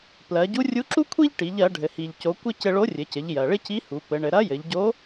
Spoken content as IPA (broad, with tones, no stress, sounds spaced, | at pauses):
p l ɜ˩˧ ɟ u˧˥ rʲ u˧˥ ǁ u˥ kʷʰ i˥ ʎ ʈ i˩˧ ʎ ɜ˩˧ ɖʱ ɘ˩ h i˩ ʎ c o˩˧ kʷ ɪ˥ c ɘ˧ ɭ o˧˥ rʲ ɘ˩˧ c ɘ˩˧ ʎ j ɜ˩ ɭ ɪ˥ c i˧˥ h u˩˧ p ɘ˩˧ ɳ ɘ˩˧ ɾ ɐ˧˥ j ɘ˩˧ ʎ ɟ o˧˥